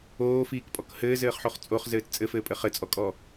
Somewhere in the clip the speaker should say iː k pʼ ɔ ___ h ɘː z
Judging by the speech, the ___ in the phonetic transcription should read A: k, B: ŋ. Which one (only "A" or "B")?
A